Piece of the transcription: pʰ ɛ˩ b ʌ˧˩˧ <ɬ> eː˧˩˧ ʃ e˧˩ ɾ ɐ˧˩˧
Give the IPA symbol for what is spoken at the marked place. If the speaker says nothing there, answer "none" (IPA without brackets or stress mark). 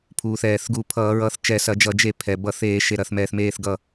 θ